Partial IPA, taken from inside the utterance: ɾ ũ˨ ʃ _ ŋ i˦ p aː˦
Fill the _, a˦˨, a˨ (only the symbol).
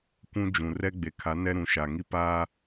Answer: a˨